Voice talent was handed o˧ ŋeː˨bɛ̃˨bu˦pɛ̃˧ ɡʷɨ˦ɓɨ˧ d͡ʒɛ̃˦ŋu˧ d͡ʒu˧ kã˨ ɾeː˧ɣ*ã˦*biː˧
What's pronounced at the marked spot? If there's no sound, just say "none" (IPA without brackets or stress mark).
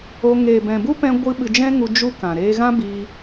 ã˦